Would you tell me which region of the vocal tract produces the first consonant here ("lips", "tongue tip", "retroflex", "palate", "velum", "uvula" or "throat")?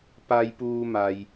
lips